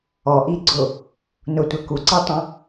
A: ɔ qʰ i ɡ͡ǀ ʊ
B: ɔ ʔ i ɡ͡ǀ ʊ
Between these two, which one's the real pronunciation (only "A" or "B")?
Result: B